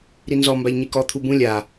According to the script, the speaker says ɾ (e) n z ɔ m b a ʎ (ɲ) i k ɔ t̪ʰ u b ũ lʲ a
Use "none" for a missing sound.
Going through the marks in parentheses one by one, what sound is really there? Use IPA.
i, ɲ

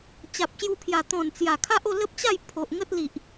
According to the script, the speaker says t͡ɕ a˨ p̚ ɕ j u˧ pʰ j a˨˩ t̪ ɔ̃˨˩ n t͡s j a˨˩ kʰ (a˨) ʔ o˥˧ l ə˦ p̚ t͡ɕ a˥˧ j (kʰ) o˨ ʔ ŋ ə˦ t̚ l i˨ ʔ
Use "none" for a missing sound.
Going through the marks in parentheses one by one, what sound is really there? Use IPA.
a˦, pʰ

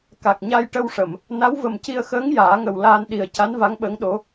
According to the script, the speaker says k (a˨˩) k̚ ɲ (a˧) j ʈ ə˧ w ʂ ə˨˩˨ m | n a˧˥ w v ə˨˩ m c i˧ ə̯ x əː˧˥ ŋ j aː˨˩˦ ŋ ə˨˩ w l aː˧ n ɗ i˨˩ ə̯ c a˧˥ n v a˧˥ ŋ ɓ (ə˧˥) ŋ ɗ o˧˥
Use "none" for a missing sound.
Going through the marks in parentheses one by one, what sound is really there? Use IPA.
a˨˩, a˧, ə˧˥

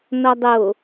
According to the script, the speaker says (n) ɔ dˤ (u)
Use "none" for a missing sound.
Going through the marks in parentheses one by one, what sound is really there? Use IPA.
n, o

